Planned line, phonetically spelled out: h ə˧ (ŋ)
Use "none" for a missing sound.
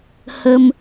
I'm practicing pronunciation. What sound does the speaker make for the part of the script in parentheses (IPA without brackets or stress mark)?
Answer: m